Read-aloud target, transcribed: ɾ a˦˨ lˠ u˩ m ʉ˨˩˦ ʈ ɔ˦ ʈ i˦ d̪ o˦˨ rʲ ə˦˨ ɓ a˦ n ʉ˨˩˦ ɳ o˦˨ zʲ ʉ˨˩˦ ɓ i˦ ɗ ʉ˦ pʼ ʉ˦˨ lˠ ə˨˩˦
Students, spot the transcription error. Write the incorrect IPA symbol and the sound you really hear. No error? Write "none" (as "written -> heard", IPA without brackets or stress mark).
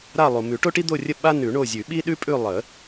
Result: ɔ˦ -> o˦